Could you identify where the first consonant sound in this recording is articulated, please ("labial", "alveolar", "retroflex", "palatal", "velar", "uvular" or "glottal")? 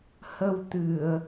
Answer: glottal